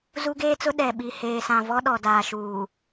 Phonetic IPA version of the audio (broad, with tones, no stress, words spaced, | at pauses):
zu˦ɡeː˦t͡sʊ˦ ɗɛ˨ɓi˨ heː˨sã˨vɔ˦ ɗɔ˨daː˨ ʃuː˨